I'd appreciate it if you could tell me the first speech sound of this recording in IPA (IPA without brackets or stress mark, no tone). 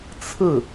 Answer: t͡sʰ